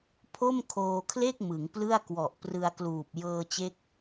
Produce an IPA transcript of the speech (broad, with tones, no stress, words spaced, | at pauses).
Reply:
pʰo˥˩mkʰoː˧kʰle˥˩k̚ mɯ˩˦ŋplɯ˥˩a̯kwɔ˨˩ʔ prɯ˧a̯kluː˨˩p̚ jɤː˧t͡ɕe˦˥k̚